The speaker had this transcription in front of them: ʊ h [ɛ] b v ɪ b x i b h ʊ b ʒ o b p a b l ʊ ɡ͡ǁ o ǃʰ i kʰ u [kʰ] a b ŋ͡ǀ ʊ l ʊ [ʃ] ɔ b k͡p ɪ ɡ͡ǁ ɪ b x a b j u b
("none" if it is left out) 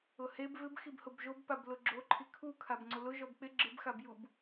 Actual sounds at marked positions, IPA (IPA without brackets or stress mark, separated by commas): e, kʰ, ʒ